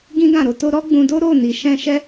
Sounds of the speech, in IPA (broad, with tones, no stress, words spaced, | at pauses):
ɡĩ˦ɡã˦˨ɾo˨˦to˦ ɾɔ˦ɡ͡bũ˧do˦ ɾo˦˨ni˨ʃɛ̃˧ ʃɛ˦